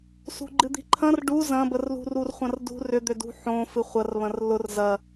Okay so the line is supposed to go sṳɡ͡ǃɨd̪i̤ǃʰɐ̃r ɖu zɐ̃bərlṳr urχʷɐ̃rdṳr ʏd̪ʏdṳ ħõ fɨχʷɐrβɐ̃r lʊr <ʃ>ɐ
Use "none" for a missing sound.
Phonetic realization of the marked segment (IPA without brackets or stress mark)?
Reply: z